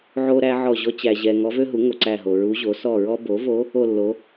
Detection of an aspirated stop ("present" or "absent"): absent